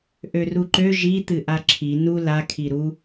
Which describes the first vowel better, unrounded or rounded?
rounded